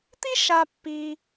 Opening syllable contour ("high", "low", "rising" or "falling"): high